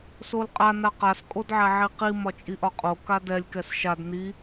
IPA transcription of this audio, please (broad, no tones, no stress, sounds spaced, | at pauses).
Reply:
s o l qʼ a n a q a s kʼ o d ʕ ɛ ʕ i q i m ɒ t͡ʃʼ i ʔ ɒ qʼ o k a d ɛ lʲ k ɛ s ʃ a d n i